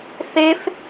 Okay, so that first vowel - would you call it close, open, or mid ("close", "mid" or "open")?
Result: mid